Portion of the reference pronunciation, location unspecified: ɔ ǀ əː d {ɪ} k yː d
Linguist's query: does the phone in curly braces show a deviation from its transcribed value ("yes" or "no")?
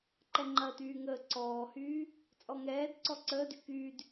yes